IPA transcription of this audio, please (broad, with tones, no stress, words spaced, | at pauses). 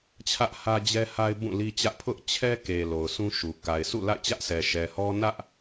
t͡ɕʰä˦ʔhä˦d͡ʑɛ˦ha˦ɪ̯ bũ˦˨li˦t͡ɕä˦ʔ pʰʊ˦ʔt͡ɕʰɛ˦ke˨ lo˨ʊ̯sʰũ˦ʃu˨ ka˨ɪ̯sṵ˦˨la̰˦˨ɪ̯t͡ɕä˦ʔ sʰɛ˨ʃɛ˨hɔ˦ nä˦ʔ